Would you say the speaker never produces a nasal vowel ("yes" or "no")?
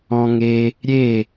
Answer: no